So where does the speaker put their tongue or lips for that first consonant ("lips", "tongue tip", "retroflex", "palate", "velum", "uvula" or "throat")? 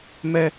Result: lips